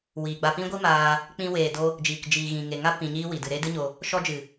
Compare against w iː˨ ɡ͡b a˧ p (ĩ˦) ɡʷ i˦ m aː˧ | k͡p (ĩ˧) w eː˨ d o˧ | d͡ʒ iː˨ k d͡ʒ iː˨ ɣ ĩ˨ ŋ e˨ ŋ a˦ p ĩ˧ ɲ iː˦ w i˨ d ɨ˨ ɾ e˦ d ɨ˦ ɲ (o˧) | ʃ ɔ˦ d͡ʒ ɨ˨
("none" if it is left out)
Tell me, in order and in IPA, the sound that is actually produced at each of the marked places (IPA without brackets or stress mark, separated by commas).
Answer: ĩ˦, ĩ˧, o˧